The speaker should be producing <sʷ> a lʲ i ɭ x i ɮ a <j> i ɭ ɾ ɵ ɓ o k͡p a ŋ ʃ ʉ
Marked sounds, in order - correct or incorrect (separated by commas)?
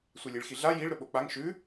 correct, correct